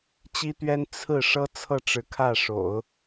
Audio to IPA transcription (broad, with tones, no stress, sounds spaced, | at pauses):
t͡ɕ i˥ t̪ ɥ ɛ˥ n t͡sʰ ɹ̩˥˩ ʂ ɤ˥ t͡sʰ ɤ˥˩ ʈ͡ʂ ɻ̩˧˥ kʰ ä˥˩ ʂ o̰˨˩˦ ʊ̯